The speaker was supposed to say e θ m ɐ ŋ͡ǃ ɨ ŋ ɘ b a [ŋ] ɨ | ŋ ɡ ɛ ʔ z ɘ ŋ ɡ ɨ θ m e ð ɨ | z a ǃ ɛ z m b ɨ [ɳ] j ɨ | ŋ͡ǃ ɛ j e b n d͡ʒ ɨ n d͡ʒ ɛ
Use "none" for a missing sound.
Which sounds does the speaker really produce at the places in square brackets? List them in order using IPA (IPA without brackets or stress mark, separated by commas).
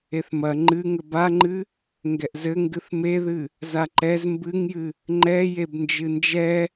ŋ͡ǃ, ŋ